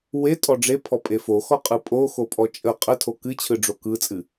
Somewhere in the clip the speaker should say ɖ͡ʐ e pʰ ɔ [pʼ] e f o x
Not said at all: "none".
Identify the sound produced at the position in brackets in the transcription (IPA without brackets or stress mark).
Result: pʼ